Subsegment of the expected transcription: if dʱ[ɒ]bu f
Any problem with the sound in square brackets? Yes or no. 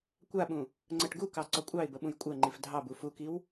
yes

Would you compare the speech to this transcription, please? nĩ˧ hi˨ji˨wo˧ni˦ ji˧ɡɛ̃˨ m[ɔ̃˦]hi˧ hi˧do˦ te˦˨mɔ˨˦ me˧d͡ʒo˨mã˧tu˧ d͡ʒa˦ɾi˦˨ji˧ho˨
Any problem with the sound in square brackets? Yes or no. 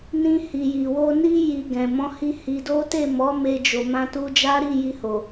yes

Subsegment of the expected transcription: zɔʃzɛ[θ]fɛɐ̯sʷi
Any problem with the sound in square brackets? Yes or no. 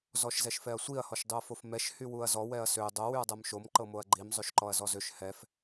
yes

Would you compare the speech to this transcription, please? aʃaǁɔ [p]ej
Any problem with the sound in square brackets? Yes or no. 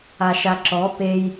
no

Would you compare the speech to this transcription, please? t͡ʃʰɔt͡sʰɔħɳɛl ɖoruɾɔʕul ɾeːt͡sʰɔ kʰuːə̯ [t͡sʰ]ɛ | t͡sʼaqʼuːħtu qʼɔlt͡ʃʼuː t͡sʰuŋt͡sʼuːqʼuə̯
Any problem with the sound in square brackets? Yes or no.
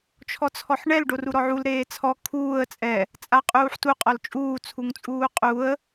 yes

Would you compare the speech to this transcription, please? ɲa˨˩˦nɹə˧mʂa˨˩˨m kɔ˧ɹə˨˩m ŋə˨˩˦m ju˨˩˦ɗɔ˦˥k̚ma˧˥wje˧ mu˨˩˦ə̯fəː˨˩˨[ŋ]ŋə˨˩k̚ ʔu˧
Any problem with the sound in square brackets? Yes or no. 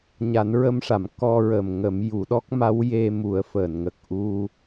yes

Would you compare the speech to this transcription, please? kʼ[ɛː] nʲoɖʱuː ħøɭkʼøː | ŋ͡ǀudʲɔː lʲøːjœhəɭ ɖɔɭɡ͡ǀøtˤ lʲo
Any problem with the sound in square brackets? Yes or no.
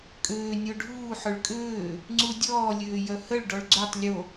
yes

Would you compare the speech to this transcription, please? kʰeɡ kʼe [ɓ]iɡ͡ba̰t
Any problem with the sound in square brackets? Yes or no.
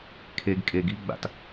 yes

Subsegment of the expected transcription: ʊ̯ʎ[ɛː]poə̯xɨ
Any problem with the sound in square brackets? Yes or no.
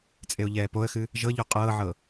no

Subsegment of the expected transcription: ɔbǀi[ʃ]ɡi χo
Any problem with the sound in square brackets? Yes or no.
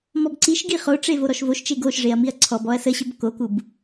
no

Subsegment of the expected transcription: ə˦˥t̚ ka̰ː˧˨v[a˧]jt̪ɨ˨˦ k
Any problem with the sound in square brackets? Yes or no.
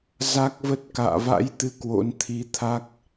yes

